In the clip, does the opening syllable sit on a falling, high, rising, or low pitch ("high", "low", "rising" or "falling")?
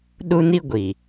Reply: high